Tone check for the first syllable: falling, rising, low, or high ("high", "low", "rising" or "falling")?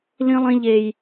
high